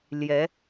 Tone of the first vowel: rising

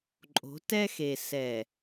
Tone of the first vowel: rising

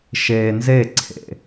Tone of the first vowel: low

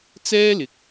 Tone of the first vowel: high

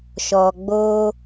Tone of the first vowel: low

